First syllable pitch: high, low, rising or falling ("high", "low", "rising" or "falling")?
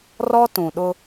high